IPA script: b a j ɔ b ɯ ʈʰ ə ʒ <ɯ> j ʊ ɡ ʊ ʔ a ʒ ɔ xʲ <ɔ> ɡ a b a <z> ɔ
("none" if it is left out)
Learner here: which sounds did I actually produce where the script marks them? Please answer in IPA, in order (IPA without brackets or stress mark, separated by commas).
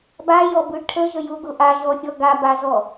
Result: ə, ɔ, z